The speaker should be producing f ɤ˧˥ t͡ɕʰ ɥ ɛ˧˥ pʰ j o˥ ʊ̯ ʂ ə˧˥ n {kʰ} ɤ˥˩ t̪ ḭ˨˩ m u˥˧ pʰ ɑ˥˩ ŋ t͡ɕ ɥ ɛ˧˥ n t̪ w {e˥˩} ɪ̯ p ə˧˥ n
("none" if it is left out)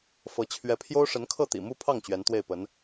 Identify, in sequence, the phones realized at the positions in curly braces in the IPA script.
kʰ, e˥˩

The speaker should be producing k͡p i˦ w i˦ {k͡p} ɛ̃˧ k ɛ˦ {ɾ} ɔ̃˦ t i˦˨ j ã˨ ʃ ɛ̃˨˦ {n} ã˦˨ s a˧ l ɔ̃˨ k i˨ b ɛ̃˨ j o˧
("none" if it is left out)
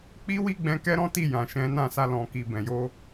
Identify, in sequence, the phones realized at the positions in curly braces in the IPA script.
ɡ͡b, ɾ, n

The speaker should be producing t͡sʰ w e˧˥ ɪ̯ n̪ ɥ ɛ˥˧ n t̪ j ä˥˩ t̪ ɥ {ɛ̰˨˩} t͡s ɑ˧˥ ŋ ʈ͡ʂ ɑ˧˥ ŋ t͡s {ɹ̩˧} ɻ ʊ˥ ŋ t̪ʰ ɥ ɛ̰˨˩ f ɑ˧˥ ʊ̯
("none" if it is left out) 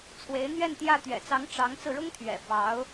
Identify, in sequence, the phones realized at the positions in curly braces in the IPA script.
ɛ̰˨˩, ɹ̩˧

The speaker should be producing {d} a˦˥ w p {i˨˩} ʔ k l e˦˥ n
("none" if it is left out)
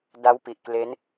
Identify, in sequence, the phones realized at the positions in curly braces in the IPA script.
d, i˨˩

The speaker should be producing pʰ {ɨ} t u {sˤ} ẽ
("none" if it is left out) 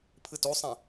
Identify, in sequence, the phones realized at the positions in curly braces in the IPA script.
ɨ, sˤ

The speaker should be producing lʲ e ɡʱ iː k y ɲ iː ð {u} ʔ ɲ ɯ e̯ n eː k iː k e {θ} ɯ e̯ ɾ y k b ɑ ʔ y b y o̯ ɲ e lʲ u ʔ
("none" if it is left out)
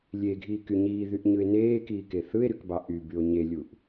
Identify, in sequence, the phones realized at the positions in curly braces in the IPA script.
y, θ

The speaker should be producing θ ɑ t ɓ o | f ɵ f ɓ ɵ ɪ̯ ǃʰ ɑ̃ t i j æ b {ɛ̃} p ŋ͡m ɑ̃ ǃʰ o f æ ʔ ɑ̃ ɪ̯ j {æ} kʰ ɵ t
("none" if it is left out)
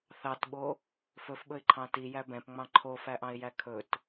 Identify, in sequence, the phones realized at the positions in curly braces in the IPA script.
ɛ̃, æ

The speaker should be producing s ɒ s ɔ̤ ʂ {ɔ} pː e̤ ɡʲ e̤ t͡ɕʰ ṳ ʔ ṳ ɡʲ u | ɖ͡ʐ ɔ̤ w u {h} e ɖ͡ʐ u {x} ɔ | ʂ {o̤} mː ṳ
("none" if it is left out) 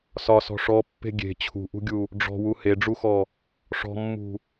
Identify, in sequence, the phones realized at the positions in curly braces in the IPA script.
ɔ, h, x, ɔ̤

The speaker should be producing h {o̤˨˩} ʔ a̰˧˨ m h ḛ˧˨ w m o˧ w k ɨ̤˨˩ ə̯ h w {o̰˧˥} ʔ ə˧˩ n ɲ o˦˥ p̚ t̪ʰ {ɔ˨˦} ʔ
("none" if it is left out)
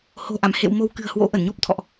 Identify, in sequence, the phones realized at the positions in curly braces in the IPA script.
o̤˨˩, o̰˧˥, ɔ̰˧˨

